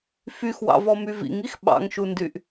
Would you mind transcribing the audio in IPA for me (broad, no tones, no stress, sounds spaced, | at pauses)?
f y x w ɑ̰ v ɔ m y v ḭ ŋ i x ɓ ɑ̰ ŋ ʃ u n d y ʔ